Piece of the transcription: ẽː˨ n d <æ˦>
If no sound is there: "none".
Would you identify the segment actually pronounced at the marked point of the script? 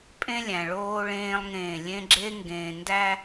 æ˦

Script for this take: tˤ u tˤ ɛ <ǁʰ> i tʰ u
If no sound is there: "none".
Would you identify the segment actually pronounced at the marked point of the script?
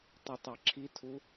ǁʰ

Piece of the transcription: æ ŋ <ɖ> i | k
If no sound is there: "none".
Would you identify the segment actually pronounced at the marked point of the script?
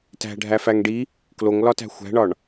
ɖ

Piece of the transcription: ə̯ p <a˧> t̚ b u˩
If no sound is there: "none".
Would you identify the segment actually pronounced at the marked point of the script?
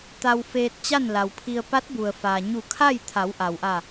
a˧˥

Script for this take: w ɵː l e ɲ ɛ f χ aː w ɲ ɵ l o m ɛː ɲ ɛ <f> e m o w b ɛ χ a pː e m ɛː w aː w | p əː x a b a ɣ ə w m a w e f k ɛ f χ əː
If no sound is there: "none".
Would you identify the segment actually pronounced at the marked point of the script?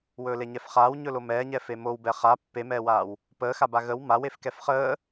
f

